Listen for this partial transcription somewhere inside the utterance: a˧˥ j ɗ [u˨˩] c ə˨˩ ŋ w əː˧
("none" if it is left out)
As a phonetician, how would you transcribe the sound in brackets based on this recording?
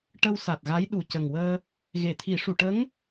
u˨˩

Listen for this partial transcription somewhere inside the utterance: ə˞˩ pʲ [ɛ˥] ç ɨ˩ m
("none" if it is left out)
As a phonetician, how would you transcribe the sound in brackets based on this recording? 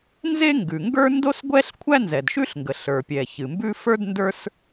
ɛ˩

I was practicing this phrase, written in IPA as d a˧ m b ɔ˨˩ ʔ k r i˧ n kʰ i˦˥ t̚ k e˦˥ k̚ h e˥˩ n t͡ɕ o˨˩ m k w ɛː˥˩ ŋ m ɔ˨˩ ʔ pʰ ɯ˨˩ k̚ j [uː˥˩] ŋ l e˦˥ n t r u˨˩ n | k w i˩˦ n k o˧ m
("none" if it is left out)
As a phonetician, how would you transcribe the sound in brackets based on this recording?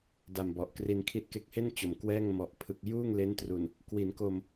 uː˥˩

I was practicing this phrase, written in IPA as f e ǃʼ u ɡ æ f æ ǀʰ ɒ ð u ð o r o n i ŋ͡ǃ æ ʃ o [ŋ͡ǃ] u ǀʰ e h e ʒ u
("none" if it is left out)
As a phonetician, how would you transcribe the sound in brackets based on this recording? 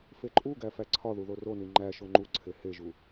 ŋ͡ǃ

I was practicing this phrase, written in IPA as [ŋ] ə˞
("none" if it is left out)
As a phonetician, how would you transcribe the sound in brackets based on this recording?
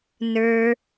n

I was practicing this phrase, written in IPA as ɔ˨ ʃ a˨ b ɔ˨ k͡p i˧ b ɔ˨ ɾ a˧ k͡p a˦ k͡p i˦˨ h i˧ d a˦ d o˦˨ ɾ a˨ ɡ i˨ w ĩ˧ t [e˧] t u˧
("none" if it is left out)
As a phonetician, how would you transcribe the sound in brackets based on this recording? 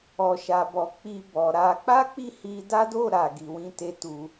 e˧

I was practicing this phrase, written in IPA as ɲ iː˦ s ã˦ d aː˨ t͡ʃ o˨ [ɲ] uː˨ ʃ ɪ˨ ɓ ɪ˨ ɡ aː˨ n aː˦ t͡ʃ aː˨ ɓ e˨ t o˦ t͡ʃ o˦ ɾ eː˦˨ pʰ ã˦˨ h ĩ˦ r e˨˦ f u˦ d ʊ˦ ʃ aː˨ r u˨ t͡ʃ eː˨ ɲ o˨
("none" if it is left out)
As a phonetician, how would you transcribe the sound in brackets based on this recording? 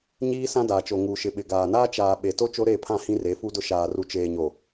ŋ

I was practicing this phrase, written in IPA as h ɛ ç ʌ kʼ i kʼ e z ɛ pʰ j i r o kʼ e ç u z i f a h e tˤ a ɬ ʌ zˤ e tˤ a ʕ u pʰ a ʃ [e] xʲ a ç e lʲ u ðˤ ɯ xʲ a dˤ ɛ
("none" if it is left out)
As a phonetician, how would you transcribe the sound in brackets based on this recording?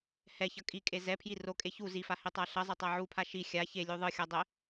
i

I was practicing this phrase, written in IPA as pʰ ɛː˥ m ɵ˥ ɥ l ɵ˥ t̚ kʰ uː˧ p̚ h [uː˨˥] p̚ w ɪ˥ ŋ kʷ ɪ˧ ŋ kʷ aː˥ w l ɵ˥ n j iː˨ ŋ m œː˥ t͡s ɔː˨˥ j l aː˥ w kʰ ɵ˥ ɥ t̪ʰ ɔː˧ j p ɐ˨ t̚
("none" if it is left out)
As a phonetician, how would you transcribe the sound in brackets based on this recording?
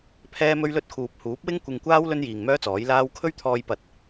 uː˨˥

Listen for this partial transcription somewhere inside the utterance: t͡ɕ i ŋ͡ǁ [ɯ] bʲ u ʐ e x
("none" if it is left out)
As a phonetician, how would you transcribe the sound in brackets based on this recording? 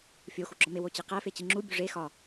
u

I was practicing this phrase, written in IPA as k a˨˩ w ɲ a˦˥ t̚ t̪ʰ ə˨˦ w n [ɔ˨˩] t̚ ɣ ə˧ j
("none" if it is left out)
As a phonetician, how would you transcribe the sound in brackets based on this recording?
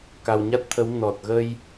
ɔ˨˩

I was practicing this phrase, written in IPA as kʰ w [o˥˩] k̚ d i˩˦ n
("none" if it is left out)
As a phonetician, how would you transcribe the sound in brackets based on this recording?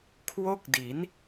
o˥˩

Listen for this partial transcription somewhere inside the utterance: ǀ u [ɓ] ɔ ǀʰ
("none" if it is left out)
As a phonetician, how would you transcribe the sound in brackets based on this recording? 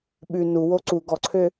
ɡ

